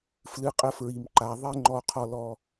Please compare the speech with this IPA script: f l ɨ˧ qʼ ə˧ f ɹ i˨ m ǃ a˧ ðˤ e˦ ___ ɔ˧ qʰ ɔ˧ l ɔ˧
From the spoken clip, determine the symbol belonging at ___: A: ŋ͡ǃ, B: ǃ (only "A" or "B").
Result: A